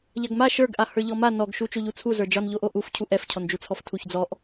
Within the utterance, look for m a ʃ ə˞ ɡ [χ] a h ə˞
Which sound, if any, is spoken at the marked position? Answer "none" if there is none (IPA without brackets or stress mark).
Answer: ʔ